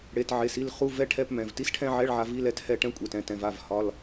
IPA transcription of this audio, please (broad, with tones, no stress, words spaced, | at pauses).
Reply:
ɽe˩˧˩tʕe˩˧˩si˥˩l χu˧˥˧vɛ˧˥˧ʈʰɛ˧˥˧pmɛ̃˩˧˩v ti˧˥˧sʈʰɛ̃˥˧ʕɛ˧˥˧ɭʕa˨˦ vi˧˥˧lɛ˥˩thɛ˥˩ ʈɛ̃˥ kʷʼe˩˧˩tɛ̃˨˦tɛ̃˩˧˩v a˥˩v hɒ˧˥˧l